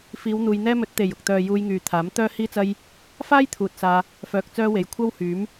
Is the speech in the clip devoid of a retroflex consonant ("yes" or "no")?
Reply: yes